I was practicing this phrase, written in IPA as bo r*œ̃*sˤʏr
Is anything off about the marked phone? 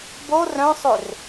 no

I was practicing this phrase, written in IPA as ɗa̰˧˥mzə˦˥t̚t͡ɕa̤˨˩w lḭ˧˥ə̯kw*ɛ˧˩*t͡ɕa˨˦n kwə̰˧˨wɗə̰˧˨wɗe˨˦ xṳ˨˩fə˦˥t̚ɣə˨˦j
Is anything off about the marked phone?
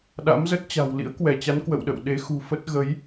no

